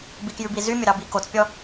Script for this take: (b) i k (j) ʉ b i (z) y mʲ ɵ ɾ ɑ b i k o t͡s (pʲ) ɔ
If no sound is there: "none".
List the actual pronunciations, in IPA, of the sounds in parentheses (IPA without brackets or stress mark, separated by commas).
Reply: b, j, z, pʲ